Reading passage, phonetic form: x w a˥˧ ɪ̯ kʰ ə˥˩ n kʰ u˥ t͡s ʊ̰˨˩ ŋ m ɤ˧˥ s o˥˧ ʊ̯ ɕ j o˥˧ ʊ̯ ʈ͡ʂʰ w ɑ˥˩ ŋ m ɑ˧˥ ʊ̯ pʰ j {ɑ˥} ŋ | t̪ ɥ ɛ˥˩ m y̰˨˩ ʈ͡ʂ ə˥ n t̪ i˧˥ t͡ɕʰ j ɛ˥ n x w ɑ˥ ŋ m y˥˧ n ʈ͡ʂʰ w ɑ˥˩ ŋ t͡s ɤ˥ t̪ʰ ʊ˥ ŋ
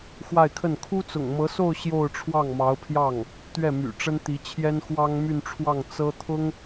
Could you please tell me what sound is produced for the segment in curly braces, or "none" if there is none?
ɑ˥˩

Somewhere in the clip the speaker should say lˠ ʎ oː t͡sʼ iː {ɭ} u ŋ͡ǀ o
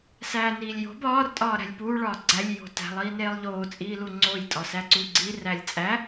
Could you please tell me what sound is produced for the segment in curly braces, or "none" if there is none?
l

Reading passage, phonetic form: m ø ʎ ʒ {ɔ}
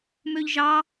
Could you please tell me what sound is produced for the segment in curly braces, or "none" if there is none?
ɑ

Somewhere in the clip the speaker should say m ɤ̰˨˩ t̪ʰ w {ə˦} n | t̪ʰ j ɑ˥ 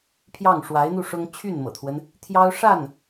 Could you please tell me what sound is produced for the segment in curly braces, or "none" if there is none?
ə˦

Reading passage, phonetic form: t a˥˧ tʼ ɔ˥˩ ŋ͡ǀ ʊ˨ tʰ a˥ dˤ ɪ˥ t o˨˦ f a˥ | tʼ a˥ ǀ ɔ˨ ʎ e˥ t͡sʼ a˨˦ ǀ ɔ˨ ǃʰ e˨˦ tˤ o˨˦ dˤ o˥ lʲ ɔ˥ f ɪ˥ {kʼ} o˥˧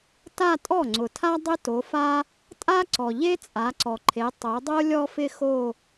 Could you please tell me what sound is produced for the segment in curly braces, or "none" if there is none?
x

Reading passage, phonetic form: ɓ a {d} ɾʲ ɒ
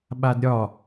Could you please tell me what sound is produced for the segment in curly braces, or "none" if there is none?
d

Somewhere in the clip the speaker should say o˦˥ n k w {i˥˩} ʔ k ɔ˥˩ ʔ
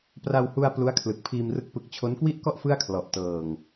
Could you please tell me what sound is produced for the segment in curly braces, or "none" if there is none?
i˥˩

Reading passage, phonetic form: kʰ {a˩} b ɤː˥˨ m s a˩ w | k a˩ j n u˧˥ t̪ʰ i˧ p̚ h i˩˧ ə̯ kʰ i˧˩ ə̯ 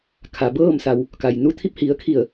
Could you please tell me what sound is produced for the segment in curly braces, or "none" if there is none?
a˩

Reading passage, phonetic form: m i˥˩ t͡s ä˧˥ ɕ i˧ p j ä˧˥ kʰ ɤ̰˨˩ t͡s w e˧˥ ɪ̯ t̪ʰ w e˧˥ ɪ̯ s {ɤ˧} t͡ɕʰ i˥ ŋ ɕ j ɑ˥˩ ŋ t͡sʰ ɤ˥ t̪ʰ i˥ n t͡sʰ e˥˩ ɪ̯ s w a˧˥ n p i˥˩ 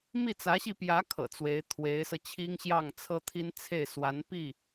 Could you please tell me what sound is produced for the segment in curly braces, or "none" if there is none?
ɤ˧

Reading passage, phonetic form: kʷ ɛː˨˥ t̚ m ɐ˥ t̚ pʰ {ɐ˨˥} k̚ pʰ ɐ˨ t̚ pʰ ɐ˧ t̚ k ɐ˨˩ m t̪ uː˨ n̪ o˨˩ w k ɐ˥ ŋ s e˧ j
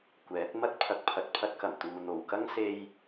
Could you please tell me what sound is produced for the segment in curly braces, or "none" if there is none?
ɐ˧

